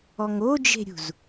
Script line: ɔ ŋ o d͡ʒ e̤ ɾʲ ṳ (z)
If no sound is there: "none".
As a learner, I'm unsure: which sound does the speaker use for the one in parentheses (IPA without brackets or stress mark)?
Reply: z